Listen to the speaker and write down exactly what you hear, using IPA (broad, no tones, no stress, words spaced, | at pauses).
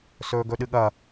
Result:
sɵːɡɵɗɨɠɐ